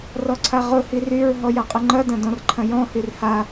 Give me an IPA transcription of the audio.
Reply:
rɔǀʰaʁʊ hiryɹ ɦɔjaqʼʊŋ͡ǃɐ dɐ̃dɔ̃rǃʰɐ̃jɔ̃ hyrha

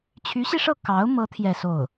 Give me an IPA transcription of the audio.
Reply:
t͡ɕʰy˧˥ɕi˧ʂɤ˥˩ kɑ˧˥ʊ̯mɤ˧˥ t̪ʰjɛ˥˧so˥˩ʊ̯

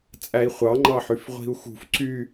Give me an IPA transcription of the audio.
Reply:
t͡sʼæi̯χʷɑŋ͡ǃɑħyf ʁʷi̤u̯xṳf ǀy

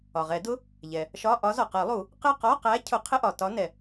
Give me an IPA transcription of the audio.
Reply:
ɒ˩ʁɛ˨˩˦dʊ˧˥˧ | ʎɛ˩ | ʃɒ˧˥˧ʔɒ˧˥ zɔ˩qɜ˨˩˦lˠu˨˩˦ | qɪ˦˨qɔ˧˥˧qæ˧˥ cʰʊ˨˩˦qʰɪ˧˥˧ʔɒ˩ tɒ˧˥nɛ˩

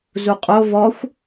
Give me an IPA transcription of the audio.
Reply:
zuqʼo vɔxʷ

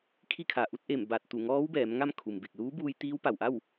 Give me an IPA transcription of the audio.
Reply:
kʰi˥˨kʰa˩ʔu˧˥t̚ʔe˧˩m ba˧˩t̚ t̪u˧˩ŋɔː˧˥w bɛː˩˧mŋa˥˨mkʰu˩mbe˧˩k̚ luː˧˥buː˧j t̪iː˧˥wpa˩w ʔa˥˨w

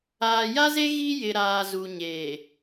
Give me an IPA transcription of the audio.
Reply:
aː˨ja˦ze˦ ɣi˦jɪ˨ ɾaː˨ zu˨ɲeː˨

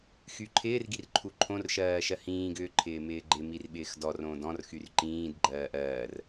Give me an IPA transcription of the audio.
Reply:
xyǃʰɪːr ɡirǃʰuǃʰõr ʃɜːʃɜhĩːɡ ʏːǃʰɪːmɪːɡ͡ǃɪ mirɓɪːxdɔ rõːdɔ̃r xyrǃĩːd ɡ͡ǃɜːʔɜːr

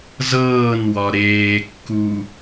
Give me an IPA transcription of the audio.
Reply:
zɤːnwɒ ɾeːkːu

